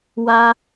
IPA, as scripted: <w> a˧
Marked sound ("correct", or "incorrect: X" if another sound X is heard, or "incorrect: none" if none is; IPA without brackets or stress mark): correct